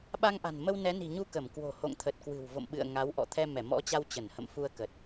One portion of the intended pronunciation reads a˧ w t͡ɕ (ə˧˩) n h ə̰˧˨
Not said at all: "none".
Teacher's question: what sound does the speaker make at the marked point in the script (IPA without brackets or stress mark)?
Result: ə˧˩